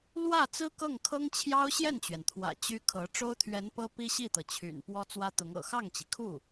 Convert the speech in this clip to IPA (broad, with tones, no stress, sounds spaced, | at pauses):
l w ä˥˩ t͡s ɹ̩˥ k ɤ˥˩ ŋ kʰ ɤ˥ ŋ t͡ɕʰ j ɑ˥ ʊ̯ ɕ j ɛ˥˩ n t͡ɕ ɥ ɛ˩ n t̪ʰ w ä̰˨˩ t͡ɕ y˥ kʰ ɤ˧˥ ʈ͡ʂ o˥ ʊ̯ t̪ʰ ɥ ɛ˧˥ n p ɤ˥ p i˥ ɕ i˥˩ t̪ ɤ˩ t͡ɕʰ y̰˨˩ n p w ɔ˥ t͡s w ä˥ t̪ ʊ˧˥ ŋ ɤ̰˨˩ x ɑ˥˩ ŋ t͡ɕ i˩ kʰ u˥˩